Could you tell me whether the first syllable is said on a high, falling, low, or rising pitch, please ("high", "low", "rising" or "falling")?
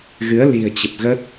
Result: rising